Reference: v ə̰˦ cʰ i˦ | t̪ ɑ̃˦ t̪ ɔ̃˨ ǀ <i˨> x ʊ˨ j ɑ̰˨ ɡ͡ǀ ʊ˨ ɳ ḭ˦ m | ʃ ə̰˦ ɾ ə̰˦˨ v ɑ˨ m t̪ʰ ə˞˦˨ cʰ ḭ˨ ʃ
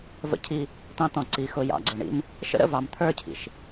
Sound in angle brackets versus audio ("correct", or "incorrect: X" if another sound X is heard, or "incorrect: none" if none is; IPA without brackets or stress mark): correct